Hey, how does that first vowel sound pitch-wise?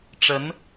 rising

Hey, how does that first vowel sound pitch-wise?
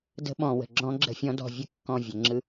rising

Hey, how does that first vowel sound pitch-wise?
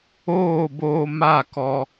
falling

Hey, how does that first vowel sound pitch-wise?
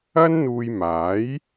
high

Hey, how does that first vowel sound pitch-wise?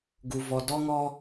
low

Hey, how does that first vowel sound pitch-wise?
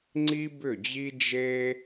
high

